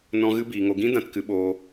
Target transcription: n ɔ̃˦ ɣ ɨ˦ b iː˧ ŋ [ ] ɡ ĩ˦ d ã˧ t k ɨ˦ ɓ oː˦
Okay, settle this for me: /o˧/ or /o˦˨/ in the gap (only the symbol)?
o˧